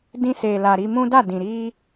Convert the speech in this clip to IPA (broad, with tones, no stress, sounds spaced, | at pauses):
d ĩ˧ s e˨ l a˨ ɾ i˧ m ũ˦ d a˦˨ d ĩ˨ ɾ i˧